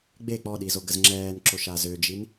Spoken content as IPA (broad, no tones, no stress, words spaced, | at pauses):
ɡ͡be k͡pɔɗizoɡəz ŋ͡ǁɛːnǁoʃa zød͡ʒin